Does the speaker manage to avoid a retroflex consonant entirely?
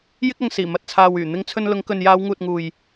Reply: yes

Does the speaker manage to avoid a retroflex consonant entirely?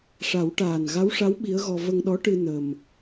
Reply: no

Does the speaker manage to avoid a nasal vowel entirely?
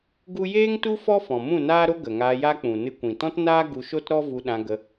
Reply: no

